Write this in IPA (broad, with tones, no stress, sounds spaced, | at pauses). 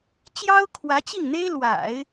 t͡ɕ j ɑ˥ ʊ̯ kʰ w ä˧˥ t͡ɕ i˥˩ ŋ n̪ e˥ ɪ̯ l w a̰˨˩˦ ɪ̯